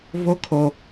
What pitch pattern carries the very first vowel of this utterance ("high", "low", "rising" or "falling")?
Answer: high